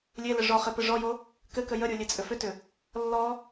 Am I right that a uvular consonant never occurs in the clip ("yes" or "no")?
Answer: no